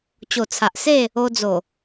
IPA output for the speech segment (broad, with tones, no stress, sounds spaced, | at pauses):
t͡ɕ o˨˩ t͡sʰ a˨ ʔ s e˥˧ | o˧ d͡z o˨˩